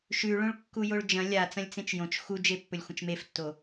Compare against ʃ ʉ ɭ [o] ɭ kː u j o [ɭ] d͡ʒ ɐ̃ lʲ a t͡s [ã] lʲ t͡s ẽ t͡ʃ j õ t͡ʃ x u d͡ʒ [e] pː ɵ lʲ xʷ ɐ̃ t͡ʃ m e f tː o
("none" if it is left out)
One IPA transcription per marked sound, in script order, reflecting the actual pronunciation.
õ, ɭ, ɐ̃, e

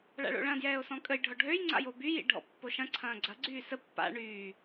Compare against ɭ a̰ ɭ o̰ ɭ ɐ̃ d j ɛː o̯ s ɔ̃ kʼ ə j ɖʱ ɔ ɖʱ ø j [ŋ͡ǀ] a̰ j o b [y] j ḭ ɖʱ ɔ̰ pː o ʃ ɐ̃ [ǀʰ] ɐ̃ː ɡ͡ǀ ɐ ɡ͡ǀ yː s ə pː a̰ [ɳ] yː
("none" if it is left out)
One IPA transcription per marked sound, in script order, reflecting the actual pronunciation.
ŋ͡ǀ, y, ǀʰ, ɳ

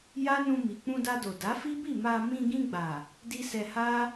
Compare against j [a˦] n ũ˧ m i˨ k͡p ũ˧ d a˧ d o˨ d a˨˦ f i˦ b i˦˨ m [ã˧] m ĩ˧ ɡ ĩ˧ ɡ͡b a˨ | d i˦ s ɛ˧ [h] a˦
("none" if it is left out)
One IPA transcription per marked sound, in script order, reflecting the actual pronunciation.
a˦, a˧, h

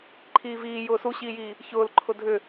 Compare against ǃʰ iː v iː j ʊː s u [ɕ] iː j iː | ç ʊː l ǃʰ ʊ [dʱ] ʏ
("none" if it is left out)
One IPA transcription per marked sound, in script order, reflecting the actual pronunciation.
ɕ, dʱ

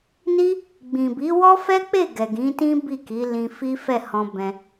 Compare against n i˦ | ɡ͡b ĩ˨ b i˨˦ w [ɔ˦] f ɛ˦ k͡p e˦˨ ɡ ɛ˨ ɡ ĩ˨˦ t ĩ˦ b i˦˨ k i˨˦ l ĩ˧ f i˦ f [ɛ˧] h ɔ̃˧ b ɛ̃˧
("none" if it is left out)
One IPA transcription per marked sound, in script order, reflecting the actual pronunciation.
ɔ˦, ɛ˦˨

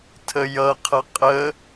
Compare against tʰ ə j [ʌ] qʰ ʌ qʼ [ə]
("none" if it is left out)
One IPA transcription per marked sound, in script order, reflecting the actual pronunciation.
ʌ, ə

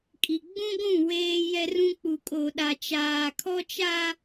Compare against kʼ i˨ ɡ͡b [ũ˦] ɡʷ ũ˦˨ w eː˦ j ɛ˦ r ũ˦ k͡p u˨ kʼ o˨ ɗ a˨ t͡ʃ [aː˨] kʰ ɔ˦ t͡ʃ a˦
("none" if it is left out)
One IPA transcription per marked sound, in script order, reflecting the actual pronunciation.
ũ˦, aː˨

